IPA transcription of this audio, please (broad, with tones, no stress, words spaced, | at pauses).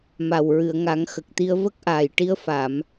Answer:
ma˨˩wɹɨ˨˩˨ə̯ŋa˨˩˦ŋ xə˨˩k̚t̪i˧ə̯ və˦˥k̚ ʔaː˨˩jʈi˧ə̯fa˨˩˨m